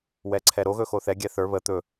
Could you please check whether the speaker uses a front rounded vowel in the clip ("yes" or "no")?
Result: no